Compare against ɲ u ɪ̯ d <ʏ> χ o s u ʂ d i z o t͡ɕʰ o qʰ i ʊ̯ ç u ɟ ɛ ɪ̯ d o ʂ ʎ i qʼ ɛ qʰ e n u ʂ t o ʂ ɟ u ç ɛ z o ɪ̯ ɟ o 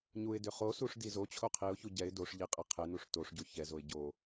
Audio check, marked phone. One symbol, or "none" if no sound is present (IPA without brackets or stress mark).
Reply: ʏ